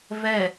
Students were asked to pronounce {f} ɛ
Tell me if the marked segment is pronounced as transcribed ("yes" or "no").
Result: no